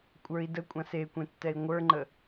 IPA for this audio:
kʷʼ ə˞ i̯ d ə kʷʼ ã s e kʷ ẽ tː ɛ i̯ ŋʷ ə˞ ŋ͡ǃ ə

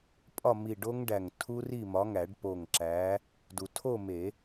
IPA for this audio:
pʼ ɒ˥˨ m i˧˩ ɖ o˦˥ ŋ ɖ æ˧˩ ŋ tʰ u˦˥ r i˥˨ m ɒ˨˥ ŋ æ˨˩˦ ɖ p o˧˩ ŋ ǁ æ˨˥ | d u˩ tʰ o˥˨ m e˨˩˦

